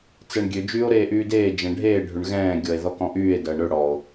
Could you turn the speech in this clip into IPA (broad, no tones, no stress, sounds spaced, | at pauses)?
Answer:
t͡s ɛ ɳ ɡʲ ø d͡ʒ yː o̯ ɾ eː ʔ yː d eː d͡ʒ ɛ̃ ɖʱ eː ɖʱ ʏ ɳ ɣ ɛ̃ː ɡʲ ɔ e̯ ð ɔ k ɔ̃ ʔ yː e̯ d ɐː ɳ ɾ ø ɽ ɔ o̯